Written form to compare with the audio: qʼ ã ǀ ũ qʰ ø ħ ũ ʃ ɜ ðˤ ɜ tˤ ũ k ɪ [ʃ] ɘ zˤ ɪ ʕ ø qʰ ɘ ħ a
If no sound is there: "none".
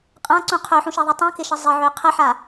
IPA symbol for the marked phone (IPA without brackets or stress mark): ʃ